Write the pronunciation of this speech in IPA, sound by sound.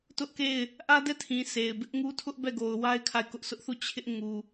t ʊ˦ ʔ k e˦˨ ɪ̯ | ʔ ä˦ d ɛ˦˨ tʰ ĩ˨ sʰ e˨ ɪ̯ b ɪ˦ ʔ ŋ u˦ tʰ ʊ˦ ʔ b ɛ˦˨ ɡ o˨ ʊ̯ w a˦ ɪ̯ kʰ a˦˨ ɪ̯ k ʊ˦ ʔ s ʊ˦ ʔ θ u˦˨ t͡ɕʰ ɪ˦ ʔ ŋ u˨

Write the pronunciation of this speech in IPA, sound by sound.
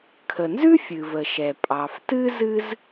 kʰ ə˩ n z ʉ˥ fʲ ɨ˩ v ə˩ ʃ ɛ˩ pʼ ɑ˩ f t ɨ˥ z ɨ˥ z

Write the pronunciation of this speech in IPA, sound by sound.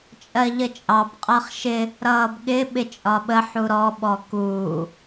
t͡ʃʼ ɜ ʎ ə t͡ʃʼ ɑ b qʼ ɜ χ ʃ ɪ | ɾ ʌː b ɠ ɪ ɓ ɪ t͡ʃʼ ɒ ɓ ə ħ u ɾ ɔ ɓ ɔ k uː

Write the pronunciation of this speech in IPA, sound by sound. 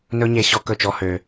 n ɵ˦ ɲ e˧ ɕ ɔ˦ k ɵ˦˨ t͡ʃ ɔ˦ h ø˧

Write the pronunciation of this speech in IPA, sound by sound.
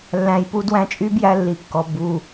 lː æ̃˧ j p u˦ d w æ̃˧ t͡ʃʼ y˦ b j æ˧ lː i˨ kː ɔ˨ b u˨

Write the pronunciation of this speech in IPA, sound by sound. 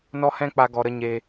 n ɔ˦ h ɛ̃˦ k͡p a˧ ɡ ɔ˨ ɾ ə˧ ɲ eː˧

